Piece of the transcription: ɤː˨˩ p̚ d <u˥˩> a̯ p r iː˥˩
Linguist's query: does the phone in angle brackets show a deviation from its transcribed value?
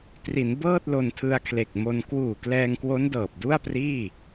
no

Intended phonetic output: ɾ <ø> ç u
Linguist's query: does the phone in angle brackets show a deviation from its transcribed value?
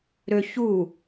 no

